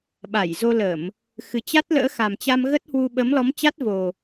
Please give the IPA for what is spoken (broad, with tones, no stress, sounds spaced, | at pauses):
ɓ a˧˩ j z o˧ l ə˧˩˨ m | x ɨ˨˩ t͡ɕ a˦˥ t̚ l ə̰ː˧˥ x a˨˩ m t͡ɕ a˧ m ɣ ə˦˥ t̚ h w u˧ ɓ ə˨˦ m l ɔ˨˦ m t͡ɕ a˦˥ t̚ v o˨˩